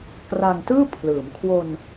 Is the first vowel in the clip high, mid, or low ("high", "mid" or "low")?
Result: low